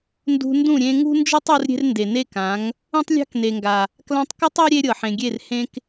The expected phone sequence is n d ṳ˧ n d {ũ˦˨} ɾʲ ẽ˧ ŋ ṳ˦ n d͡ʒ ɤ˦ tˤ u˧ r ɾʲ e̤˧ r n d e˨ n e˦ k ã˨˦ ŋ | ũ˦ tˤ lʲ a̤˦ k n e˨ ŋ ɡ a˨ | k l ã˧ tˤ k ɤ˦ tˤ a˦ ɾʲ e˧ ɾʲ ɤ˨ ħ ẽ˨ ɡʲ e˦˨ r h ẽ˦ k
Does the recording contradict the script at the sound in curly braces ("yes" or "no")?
no